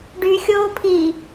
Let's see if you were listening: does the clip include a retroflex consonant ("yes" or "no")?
yes